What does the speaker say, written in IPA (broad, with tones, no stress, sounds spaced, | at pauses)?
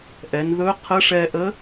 ʔ ɛ˩˧ n ð ɵ˧˥ qʰ ə˧˥ ʂ ɛ˧ ʔ ə˧˥